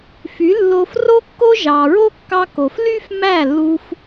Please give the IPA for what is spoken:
f y˨˦ lː o˧ f r o˦ kː o˦ ʒ ɑ˨ ɹ o˦ kː ɑ˧ k o˨ f l y˦ f m æ˦˨ lː u˧ f

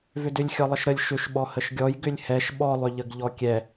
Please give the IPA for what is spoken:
v ʏ d ʏ lʲ xʲ ɔ lˠ ə ʃ ɾ ə lʲ ʃ ʏ ʃ ɓ ɔ h ə ʃ ɡʲ ɔ j ɡ ʏ lʲ h ɛ ʃ ɓ ɔ lˠ ʏ ʎ ə ɡ ʎ ɔ kʲ ɛ

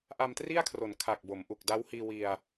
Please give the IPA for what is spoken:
ʔ a˧ m t r i˥˩ a̯ kʰ r o˩˦ n kʰ a˨˩ k̚ b o˩˦ m ʔ u˨˩ k̚ d a˦˥ w h iː˧ w i˧ a̯

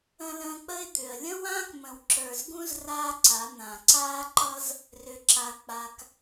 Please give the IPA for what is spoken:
ə̃˧ l ə̃ː˧ k͡p ə˦ ɪ̯ d̪ ʏ˨ ə̯ lʲ ə̃˦ w ãː˦ k m ə̃˨ w ǁ ə˞˨ z ɡ ũ˦ z r aː˦ ǀ a˨˦ n̪ ã˨ ǀ aː˦ ǃ ʌ˦ z | r ʏ˧ ǁ a˧ k͡p a˧ k

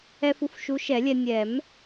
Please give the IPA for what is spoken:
ɛ˧ f u˨˥ f ʃ u˨˥ ʃ ɛ˨˩˦ lʲ ɛ˧ nʲ ɛ˨˩˦ m

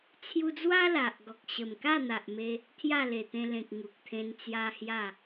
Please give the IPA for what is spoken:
t͡sʰ j u˧ d͡z w a˦ l a˨ ʔ ɡ ɔ˨ k̚ ɕ ə˨˩ m k a˥˧ n̪ a˨ ʔ m e˧ | t̪ʰ j a˥˧ l e˨˩ t̪ ẽ˧ l ẽ˨ k̚ ŋ u˨ k̚ t̪ʰ ẽ˧ n t͡s j a˦ h j a˥˧

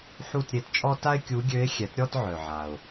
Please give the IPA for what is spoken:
ħ u˥˧ t ɾʲ e˧˥ t t͡ʃʼ ɔ˥ t a˥ ɪ̯ kʲ u˧˥ ɡʲ ø˧˥ ɪ̯ xʲ ɛ˩˥ t ɾʲ ɔ˥˧ t ʕ œ˨ ʕ a˨ ʊ̯

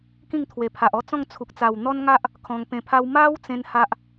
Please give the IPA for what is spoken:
k ĩ˥˧ ŋ t̪ʰ w e˨˩ pʰ a˨ ʔ ɔ˥˧ t͡s ɔ̃˥˧ ŋ t͡sʰ u˨ k̚ t͡s a˨˩ w n̪ ɔ˦ n ŋ a˦ ʔ | kʰ ɔ̃˧ ŋ p ẽ˧ pʰ a˦ w m a˦ w t͡s ẽ˦ n h a˦ ʔ

